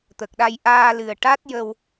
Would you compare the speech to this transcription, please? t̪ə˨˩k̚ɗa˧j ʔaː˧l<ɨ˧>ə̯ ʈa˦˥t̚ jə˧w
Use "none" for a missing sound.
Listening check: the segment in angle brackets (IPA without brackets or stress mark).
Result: ɨ˨˩